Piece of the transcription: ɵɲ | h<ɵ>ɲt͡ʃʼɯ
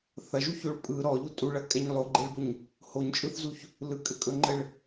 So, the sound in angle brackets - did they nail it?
no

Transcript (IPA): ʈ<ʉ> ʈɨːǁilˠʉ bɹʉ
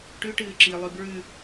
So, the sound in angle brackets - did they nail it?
yes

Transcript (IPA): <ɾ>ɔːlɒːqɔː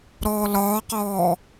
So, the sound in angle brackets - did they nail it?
yes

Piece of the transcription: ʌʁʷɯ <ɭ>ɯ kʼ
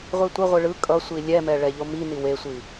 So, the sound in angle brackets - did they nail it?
yes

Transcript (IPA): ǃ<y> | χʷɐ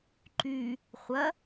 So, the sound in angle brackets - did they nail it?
yes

